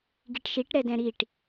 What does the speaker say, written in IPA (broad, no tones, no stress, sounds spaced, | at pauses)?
ɡ i ʈ ʃ i ʈ ɾ ɛ d ɛ̃ ɾ i ʈ